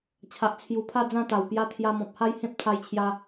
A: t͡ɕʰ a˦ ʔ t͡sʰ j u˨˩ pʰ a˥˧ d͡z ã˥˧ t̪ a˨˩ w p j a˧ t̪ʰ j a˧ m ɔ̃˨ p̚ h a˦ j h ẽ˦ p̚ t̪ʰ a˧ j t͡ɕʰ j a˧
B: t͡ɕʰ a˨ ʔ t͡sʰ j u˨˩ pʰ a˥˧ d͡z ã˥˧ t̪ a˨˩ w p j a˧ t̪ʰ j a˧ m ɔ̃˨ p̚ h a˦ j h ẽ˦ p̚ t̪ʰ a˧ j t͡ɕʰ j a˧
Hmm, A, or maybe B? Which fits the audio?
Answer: B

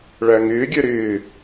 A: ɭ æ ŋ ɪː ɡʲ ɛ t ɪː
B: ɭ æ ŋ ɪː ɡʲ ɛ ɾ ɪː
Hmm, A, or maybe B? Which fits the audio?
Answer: B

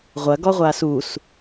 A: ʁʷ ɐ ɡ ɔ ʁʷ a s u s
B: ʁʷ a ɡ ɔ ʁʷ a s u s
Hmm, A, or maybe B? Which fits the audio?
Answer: A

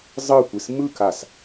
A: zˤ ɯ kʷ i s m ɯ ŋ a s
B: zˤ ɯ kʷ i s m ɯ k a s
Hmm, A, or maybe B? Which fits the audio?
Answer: B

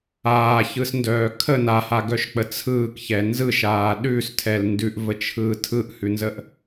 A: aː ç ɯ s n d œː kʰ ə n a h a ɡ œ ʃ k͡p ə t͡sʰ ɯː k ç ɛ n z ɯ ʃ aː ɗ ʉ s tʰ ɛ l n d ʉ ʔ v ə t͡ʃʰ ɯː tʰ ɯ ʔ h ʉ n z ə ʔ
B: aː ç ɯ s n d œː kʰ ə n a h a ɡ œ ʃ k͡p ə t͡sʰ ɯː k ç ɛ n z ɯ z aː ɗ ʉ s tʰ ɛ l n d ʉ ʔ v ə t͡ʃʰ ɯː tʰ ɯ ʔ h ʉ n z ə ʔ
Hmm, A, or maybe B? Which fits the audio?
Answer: A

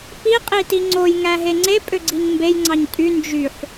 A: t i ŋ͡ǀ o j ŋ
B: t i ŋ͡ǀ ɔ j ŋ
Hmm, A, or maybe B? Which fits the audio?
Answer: A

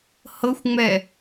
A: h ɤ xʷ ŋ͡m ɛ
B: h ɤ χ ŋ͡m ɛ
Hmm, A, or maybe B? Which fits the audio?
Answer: A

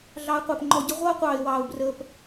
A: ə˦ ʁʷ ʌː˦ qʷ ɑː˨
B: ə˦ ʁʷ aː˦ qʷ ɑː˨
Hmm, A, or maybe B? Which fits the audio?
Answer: A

